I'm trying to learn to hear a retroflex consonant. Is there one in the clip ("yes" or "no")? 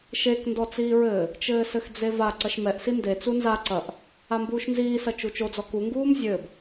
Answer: no